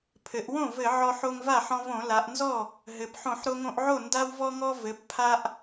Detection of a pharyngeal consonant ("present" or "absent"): present